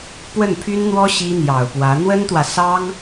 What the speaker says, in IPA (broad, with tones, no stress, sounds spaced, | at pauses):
p w ə˥˩ n pʰ y˥ n n̪ w ɔ˥ ɕ i˥ n̪ j ɑ˨˩ ʊ̯ p w ä˧˥ n̪ w ə˥ n t̪ w ä˨ s ɑ˥ ŋ